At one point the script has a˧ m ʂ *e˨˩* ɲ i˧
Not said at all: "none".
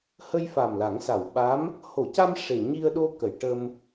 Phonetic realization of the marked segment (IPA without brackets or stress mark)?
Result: e˨˩